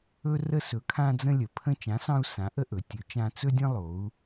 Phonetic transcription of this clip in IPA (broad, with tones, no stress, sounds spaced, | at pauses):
ɵ˦ r ə˦ s ɵ˨˥ kʰ ã˦ d͡z ə̃˦ lʲ ə˩˧ pʰ ə̃˦ t͡ʃ ã˨˥ s ɑ̃˦ u̯ s ã˨˥ ʔ ə˦ ʔ ɵ˩˧ tʲ ɵ˨˥ t͡ʃ ã˦ t͡s ɵ˦ dʲ ə̃˦ lˠ o˩˧ u̯